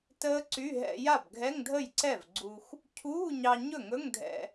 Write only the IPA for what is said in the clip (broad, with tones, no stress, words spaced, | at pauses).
təː˦˥ǀy˧˥˧ ɦɛ̰˧ja˥˩b ɡʱɛ˧˥˧ŋdʱə˥˩jǀɛ˥˩vɡ͡ǀu˧x | cʰuː˧˥˧ɲɑ˧ ɲɵ˥˩ŋɵ˧˥˧ŋdʱɛ̰˧